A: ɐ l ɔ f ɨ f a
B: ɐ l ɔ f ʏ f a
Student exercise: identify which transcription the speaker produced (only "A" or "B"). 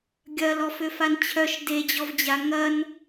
B